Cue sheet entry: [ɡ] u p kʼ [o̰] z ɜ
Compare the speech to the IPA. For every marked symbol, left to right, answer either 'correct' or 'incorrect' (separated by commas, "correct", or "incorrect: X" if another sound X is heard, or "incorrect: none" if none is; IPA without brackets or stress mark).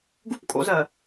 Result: correct, correct